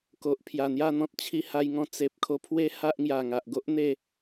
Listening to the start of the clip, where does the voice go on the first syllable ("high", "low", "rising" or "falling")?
low